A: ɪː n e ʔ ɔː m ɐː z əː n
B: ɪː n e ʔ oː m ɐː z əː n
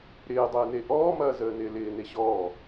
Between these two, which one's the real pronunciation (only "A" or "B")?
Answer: A